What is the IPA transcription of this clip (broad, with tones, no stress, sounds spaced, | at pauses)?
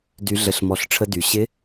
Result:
d y˩˧ ɮ ə˩˧ ɬ m ɔ˩˧ ɬ ʈ͡ʂʰ ə˧ d y˩ ɕ ɪ˧˥